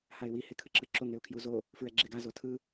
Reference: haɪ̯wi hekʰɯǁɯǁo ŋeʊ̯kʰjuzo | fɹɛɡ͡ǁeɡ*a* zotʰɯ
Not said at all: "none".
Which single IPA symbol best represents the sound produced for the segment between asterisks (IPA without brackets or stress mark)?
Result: a